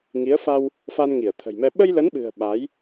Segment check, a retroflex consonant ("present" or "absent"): absent